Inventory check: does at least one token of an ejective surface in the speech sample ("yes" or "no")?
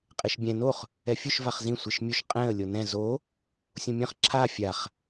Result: yes